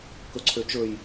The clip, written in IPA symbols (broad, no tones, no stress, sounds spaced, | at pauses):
k ɵ ǀʰ ø t͡ʃ ɵ j